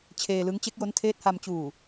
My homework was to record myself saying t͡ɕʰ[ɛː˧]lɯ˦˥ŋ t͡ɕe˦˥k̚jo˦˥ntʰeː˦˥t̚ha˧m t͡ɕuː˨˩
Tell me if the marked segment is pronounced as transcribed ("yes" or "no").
no